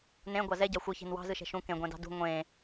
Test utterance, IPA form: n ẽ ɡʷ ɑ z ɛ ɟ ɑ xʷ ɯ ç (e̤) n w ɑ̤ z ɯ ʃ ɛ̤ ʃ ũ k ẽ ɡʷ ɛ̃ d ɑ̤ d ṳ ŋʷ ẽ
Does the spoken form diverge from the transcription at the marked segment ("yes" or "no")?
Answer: no